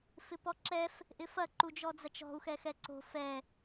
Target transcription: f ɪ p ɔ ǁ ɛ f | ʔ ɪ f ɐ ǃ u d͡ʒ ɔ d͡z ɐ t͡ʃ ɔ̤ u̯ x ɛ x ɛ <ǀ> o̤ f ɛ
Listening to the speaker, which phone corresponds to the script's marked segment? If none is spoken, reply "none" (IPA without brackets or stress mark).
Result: ǀ